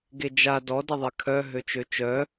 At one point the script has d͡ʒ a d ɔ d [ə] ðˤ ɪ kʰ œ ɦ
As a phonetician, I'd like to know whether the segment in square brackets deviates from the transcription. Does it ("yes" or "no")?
no